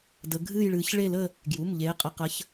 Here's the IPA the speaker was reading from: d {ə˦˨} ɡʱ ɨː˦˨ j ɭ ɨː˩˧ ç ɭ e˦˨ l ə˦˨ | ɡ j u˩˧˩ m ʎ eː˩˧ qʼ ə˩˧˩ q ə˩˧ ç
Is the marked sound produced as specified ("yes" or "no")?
no